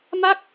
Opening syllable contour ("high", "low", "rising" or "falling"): falling